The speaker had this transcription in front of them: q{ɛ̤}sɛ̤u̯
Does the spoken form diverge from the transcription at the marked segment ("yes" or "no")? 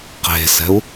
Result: yes